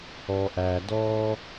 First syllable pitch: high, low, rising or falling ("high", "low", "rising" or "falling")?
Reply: low